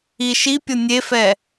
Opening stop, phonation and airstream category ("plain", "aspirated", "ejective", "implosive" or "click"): plain